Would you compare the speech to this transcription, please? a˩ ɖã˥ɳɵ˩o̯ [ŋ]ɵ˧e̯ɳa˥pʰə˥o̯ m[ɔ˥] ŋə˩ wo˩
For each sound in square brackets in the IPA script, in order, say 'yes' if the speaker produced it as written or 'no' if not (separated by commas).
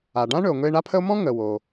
yes, no